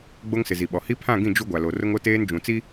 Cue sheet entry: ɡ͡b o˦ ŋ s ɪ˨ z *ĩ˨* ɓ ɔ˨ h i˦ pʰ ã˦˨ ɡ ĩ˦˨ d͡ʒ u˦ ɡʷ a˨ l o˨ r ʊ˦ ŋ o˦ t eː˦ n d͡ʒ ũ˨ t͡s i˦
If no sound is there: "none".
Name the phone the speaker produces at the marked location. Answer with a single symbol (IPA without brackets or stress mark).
i˨